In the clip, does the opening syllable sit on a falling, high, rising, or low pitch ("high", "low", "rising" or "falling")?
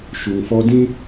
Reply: low